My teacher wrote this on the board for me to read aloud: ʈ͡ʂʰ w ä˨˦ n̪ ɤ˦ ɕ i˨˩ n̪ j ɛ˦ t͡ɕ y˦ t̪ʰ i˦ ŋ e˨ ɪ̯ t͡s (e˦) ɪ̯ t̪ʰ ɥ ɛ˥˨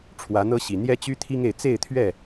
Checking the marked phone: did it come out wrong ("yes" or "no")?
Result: yes